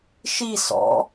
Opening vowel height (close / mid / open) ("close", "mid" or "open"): close